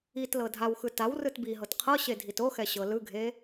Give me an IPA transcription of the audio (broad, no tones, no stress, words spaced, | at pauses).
itlɤ dʱawxɯ taw rɯtbiɦɤt qʰɤɕe dʱitoxɛ ɕɤlɯɡʱe